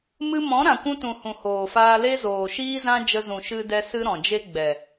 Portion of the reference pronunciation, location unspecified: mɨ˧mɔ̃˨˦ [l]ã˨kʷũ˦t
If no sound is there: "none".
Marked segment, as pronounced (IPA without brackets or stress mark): ɾ